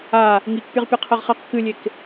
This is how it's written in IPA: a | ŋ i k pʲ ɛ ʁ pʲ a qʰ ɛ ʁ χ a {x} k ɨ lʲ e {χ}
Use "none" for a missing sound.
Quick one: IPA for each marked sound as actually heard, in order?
q, k

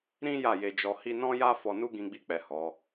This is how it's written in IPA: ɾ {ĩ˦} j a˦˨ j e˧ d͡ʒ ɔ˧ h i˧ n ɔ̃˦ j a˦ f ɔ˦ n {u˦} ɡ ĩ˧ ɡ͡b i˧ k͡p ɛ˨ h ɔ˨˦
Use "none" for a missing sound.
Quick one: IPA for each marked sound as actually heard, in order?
ĩ˦, u˦

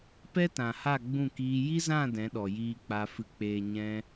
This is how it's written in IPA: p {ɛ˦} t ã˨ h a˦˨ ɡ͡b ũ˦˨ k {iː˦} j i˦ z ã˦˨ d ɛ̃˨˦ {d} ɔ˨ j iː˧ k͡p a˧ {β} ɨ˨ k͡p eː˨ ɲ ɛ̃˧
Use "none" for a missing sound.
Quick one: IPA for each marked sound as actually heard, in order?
ɛ˦, iː˧, ɗ, f

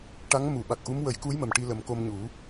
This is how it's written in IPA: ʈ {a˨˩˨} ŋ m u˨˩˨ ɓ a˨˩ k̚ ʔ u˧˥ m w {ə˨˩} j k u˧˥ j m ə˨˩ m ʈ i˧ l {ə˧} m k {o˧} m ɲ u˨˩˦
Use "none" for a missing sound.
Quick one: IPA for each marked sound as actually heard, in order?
a˧˥, ə˨˩˦, ə˨˩˦, o˧

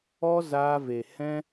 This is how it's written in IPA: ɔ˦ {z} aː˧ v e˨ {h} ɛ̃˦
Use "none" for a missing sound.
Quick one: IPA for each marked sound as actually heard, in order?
z, h

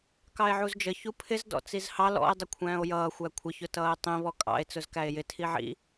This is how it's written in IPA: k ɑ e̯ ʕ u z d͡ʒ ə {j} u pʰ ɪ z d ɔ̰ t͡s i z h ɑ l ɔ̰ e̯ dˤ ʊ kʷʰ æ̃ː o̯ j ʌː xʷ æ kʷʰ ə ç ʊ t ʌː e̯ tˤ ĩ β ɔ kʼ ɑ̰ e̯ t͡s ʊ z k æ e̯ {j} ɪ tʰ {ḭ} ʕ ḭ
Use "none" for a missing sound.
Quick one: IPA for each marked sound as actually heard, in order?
ç, j, i

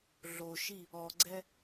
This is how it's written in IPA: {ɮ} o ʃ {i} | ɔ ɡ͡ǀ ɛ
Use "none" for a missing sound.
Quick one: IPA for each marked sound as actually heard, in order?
ɮ, i

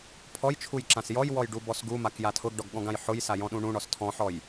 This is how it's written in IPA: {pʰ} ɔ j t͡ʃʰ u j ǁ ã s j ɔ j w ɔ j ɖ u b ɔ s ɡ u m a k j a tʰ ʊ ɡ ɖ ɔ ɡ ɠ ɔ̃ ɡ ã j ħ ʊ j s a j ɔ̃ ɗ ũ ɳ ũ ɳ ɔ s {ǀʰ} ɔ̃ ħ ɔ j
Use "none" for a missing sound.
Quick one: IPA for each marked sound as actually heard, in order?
pʰ, tʰ

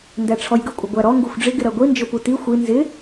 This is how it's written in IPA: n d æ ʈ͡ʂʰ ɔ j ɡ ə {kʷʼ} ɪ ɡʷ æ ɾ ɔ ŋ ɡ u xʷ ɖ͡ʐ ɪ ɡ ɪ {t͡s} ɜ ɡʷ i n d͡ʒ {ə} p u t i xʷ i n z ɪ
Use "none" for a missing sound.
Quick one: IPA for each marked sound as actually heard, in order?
kʷʼ, ɾ, ʊ

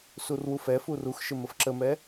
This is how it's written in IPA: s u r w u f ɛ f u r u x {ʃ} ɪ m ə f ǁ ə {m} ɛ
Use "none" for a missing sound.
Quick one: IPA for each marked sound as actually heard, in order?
ʃ, m

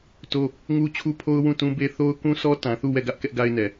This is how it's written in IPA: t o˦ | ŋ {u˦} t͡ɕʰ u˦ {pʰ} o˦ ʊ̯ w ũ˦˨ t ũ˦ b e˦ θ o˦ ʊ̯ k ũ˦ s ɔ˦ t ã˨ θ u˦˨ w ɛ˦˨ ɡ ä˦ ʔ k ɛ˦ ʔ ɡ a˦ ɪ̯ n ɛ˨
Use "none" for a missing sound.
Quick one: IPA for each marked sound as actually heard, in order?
u˦, pʰ

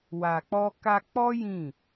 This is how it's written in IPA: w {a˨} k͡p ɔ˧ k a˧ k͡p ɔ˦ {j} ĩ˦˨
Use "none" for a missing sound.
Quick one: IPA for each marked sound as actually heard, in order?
a˨, j

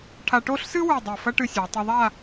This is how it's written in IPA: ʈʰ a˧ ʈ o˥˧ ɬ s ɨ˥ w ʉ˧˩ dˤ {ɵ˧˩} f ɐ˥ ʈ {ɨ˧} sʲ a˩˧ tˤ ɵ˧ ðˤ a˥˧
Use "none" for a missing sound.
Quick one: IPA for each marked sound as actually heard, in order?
o˧˩, ɨ˧

